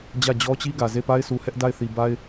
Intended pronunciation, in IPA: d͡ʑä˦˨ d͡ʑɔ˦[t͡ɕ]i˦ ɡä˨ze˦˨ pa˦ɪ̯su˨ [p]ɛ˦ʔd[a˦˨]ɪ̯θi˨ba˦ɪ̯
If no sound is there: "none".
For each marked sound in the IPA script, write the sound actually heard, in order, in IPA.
t͡ɕ, h, a˦˨

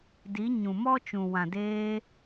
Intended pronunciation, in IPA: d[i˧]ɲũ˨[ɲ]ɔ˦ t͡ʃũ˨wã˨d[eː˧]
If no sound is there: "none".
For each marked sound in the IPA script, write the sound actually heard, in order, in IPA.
i˨˦, m, eː˧

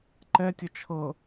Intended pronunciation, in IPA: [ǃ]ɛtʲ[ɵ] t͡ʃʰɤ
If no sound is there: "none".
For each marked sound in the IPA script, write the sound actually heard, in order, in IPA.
ǃ, ɵ

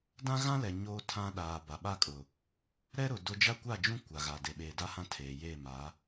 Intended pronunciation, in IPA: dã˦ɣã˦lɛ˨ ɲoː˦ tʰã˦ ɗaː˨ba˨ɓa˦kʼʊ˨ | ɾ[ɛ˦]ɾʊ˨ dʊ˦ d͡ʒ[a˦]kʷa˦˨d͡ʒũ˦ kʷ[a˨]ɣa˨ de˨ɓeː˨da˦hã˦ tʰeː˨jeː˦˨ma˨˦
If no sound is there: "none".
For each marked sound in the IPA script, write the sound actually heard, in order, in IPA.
ɛ˦, a˦, a˨

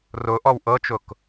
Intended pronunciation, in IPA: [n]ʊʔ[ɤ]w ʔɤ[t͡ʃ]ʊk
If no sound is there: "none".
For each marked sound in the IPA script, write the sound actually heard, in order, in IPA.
r, ɔ, t͡ʃ

